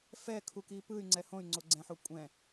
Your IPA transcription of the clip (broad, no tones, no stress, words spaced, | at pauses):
fɛkʰuki pɯy̯ŋ͡ǀɛ hõy̯ŋ͡ǀoɡ͡ǀɛ̃ħo kʷʼɛ̃